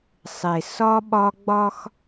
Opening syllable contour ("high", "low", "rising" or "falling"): low